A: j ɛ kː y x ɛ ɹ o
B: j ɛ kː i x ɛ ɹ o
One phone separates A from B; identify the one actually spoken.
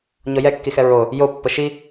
B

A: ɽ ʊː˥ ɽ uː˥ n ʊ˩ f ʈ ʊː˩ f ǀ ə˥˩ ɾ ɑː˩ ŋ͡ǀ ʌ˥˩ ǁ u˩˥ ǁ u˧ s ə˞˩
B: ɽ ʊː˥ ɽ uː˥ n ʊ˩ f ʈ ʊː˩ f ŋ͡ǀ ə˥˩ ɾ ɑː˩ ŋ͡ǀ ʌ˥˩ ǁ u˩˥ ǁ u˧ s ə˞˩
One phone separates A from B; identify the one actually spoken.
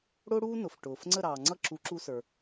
B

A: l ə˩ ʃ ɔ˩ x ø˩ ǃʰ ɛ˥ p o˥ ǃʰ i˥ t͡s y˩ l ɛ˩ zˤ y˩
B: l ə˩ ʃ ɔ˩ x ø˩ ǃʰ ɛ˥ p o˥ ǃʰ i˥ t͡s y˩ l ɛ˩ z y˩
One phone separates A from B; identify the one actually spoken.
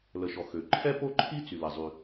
A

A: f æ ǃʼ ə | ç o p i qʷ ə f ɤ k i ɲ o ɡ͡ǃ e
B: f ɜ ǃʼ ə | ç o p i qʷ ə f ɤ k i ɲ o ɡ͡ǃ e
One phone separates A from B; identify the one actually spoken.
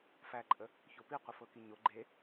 A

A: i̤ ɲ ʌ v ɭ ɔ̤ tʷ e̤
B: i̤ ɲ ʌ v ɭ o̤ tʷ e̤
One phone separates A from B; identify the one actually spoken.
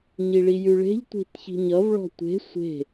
A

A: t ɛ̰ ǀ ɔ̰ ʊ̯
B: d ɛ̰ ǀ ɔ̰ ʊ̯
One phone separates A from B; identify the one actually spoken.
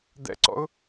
B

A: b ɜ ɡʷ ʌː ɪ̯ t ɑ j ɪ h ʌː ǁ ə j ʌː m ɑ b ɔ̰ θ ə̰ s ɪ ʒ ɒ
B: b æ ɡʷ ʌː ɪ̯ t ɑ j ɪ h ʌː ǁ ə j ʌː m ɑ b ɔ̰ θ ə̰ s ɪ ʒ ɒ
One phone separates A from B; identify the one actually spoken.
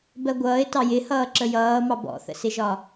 A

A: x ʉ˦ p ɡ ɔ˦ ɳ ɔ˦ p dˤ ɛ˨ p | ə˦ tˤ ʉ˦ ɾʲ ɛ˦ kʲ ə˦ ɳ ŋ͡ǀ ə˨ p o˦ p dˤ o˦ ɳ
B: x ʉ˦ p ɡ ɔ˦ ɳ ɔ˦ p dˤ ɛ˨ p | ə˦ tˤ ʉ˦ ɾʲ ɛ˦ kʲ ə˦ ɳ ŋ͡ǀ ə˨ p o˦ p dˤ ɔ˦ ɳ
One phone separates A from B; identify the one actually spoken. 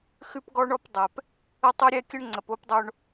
A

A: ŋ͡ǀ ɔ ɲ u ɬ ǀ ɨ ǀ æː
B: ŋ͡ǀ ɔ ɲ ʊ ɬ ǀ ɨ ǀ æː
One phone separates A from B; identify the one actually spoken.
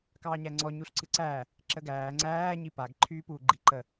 A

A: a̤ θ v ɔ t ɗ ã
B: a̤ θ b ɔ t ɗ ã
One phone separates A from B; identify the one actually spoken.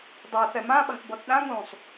B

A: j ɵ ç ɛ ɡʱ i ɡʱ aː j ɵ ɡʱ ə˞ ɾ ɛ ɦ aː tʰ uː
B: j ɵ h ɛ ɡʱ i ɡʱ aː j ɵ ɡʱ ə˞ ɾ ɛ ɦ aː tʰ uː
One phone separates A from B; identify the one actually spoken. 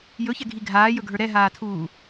A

